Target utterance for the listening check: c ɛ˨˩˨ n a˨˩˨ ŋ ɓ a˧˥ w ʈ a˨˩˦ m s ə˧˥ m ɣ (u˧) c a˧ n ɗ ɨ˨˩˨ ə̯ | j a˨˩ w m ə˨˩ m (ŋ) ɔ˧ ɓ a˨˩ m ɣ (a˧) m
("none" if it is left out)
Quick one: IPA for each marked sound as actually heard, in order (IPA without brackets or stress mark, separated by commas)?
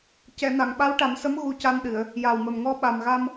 u˧, ŋ, a˧